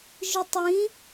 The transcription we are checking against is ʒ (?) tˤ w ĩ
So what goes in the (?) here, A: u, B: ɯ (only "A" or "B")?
B